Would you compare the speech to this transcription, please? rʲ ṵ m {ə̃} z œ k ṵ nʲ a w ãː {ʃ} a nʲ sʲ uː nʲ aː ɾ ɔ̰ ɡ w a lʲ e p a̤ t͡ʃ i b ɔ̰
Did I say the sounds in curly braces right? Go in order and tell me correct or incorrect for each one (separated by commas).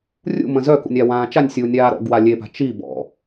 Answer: correct, incorrect